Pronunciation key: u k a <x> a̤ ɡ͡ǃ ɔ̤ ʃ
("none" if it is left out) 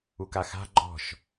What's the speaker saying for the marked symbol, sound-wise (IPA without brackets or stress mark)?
x